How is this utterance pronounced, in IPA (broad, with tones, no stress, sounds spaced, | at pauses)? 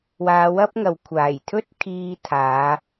w aː˨˧ w ɐ˥ p̚ ŋ ɐ˨˧ w kʷʰ aː˨˩ j t̪ʰ ɵ˥ t̚ kʰ iː˧ t̪ʰ aː˨˧